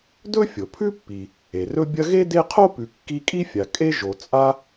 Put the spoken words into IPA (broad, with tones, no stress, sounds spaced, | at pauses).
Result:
d ɵ˥ fʲ o˩ pʰ ʉ˥ pː i˩ | e˩ r ɵ˦ bʲ ɐ˦ ɣ e˥ d e˦ qʰ o˥ p ʉ˨ kː i˦ kʼ i˥ fʲ a˨ kʼ e˥ ʒ o˨ t͡sʼ a˦